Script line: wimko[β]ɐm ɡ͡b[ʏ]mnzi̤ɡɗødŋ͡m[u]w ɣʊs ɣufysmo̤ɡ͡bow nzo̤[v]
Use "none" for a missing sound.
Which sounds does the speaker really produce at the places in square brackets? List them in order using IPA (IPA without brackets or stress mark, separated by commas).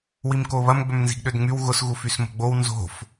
β, ʏ, y, f